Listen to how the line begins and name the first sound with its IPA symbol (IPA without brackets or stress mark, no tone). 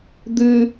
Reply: d̪